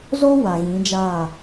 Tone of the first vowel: high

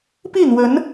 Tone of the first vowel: falling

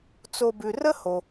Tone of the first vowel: low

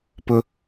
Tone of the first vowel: high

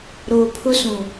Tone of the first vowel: low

